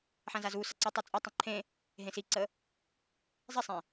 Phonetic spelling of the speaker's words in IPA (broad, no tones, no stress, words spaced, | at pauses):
ħãzazusɐ ǀutˤu t͡sʼɐtˤə̃ ǃʰẽ | ɦẽsiǀə | zˤesˤẽ